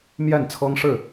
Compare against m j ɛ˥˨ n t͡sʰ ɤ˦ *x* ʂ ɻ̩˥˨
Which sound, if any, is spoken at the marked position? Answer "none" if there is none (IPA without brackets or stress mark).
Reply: ŋ